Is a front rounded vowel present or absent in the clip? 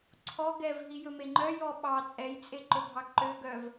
present